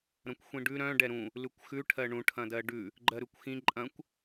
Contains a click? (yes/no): yes